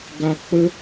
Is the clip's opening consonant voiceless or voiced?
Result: voiced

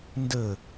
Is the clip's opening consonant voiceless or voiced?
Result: voiced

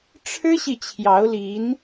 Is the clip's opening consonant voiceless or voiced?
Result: voiceless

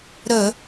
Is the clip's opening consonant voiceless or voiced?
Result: voiced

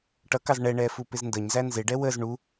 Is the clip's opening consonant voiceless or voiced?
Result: voiceless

